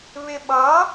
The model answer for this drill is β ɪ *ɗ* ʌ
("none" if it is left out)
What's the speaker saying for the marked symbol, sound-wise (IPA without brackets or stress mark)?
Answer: ɓ